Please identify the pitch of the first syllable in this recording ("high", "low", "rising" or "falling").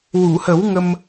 low